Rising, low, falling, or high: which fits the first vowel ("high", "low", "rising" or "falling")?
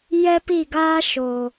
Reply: high